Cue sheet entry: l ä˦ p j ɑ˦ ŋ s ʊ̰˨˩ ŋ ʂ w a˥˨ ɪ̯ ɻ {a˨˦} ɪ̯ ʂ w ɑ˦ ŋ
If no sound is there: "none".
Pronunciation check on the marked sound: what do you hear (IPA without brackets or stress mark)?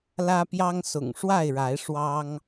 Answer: a˨˦